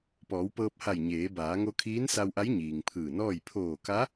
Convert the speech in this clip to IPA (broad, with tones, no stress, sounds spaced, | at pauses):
p ɔː˩˧ w p ɤː˧ p̚ h a˧˩ j ɲ eː˩˧ b aː˩˧ ŋ o˧ kʰ iː˧˥ n s a˧ w ʔ a˧˥ j ɲ iː˩ ŋ pʰ ɯː˧˩ n ɔː˥˨ j pʰ oː˧˩ k a˧˥